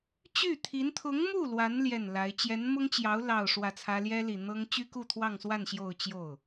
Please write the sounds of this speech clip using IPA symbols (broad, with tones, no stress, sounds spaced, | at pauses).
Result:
t͡ɕ y˥˩ t̪ʰ i˧˥ n t̪ʰ ʊ˧˥ ŋ m u˥˩ l w a˧˥ n l j ɛ˥˩ n l a˧˥ ɪ̯ t͡ɕ j ɛ˧˥ n m ʊ˥ ŋ t͡ɕ j ɑ˧˥ ʊ̯ l ɑ˥˧ ʊ̯ ʂ w ä˥˩ t͡sʰ ä˥ l j ɛ˥ l i˨˩ n̪ ɤ˥ ŋ t͡ɕ y˥ k u˥˧ t̪ʰ w ɑ˥˧ ŋ s w a˥˧ n ɕ j o˥˧ ʊ̯ t͡ɕ j o˥˩ ʊ̯